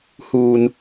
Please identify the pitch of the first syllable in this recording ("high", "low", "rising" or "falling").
low